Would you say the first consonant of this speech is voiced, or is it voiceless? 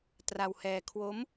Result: voiceless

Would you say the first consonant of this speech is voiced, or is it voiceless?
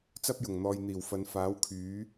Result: voiceless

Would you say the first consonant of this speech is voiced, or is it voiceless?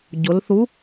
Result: voiced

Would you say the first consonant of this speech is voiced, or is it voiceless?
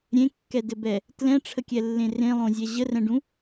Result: voiced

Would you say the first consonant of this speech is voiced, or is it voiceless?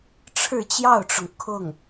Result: voiceless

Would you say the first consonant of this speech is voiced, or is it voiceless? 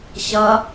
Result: voiceless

